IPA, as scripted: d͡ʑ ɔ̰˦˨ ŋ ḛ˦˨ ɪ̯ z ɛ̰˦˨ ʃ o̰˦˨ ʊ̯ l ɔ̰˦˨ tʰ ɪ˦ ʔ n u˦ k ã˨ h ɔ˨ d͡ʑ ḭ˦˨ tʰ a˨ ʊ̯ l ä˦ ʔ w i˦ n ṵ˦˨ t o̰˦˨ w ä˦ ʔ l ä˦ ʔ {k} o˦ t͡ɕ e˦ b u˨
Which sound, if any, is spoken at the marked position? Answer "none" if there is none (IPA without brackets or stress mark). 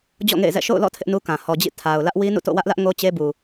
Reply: ŋ